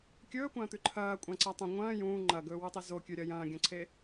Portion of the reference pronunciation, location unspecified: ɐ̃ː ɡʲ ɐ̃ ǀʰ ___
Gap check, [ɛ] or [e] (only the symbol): e